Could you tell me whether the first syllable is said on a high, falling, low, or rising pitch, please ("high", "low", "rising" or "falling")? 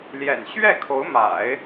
low